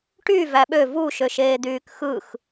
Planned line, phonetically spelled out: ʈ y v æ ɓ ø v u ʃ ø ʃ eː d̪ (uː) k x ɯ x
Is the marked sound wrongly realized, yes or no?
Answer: yes